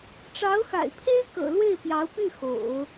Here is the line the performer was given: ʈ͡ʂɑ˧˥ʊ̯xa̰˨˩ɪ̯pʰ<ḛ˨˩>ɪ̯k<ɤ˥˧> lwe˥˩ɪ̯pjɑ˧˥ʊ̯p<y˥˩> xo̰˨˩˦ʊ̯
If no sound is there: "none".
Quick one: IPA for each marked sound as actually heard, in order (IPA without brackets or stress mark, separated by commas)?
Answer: e˥, ɤ̰˨˩, y˥˩